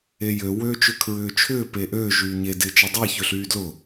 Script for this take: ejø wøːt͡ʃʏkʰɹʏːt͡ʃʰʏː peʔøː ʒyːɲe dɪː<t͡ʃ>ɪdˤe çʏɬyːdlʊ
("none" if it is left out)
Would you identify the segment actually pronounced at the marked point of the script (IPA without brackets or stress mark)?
t͡ʃ